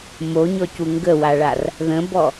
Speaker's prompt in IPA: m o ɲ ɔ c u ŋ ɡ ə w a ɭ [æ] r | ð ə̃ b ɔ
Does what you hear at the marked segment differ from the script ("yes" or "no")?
yes